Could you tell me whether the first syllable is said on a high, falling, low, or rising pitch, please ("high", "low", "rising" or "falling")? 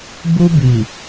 high